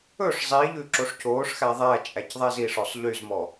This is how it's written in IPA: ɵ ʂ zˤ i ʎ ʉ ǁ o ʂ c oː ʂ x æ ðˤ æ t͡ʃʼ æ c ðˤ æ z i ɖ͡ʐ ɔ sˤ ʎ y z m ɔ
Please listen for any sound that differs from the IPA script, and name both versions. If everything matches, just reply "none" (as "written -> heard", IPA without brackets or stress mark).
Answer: ɖ͡ʐ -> ʂ